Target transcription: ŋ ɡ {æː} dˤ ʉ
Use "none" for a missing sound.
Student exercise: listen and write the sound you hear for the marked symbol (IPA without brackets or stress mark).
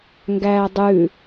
æː